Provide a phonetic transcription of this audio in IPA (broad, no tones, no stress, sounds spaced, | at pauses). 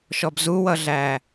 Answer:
ʃ ɔ b z u w ʌ ɮ æ